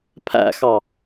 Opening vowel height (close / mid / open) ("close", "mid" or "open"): open